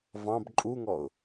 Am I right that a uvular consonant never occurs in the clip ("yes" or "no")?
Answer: yes